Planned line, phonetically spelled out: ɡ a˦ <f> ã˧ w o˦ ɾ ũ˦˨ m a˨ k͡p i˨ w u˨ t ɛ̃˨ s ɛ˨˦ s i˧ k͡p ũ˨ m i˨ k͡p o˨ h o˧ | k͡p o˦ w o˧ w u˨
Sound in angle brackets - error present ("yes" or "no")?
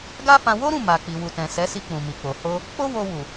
no